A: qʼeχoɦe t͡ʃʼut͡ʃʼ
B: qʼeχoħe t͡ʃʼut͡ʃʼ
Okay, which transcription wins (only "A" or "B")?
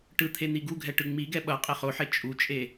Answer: B